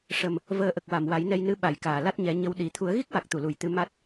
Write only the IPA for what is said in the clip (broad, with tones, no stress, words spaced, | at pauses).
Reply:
ʂə˨˩m | vəː˨˩ʔə˨˩k̚ wa˨˩˨mwa˨˩˦jnɛ˧jnɨ˧˥ ɓa˨˩˨jkaː˨˩˨ la˦˥t̚ɲɛ˨˩˦ɲə˧˥w ɗi˨˩˦ t̪ʰu˨˩˦ə̯ɣi˦˥k̚wa˨˩k̚t̪u˨˩˨ lu˨˩˨jt̪ɨ˧ ma˦˥t̚